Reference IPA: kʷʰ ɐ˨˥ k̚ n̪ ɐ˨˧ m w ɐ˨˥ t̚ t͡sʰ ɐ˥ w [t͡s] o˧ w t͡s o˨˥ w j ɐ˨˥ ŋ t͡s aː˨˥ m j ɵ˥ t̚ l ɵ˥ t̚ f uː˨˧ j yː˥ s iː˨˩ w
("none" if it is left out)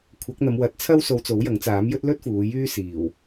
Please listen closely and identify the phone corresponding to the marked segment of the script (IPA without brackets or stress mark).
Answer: s